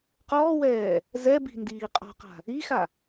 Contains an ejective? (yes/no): yes